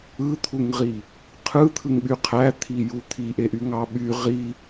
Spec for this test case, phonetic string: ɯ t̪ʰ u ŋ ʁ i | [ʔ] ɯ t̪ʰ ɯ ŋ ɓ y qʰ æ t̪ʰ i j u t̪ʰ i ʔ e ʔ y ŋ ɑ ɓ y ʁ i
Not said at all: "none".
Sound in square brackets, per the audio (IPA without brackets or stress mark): qʰ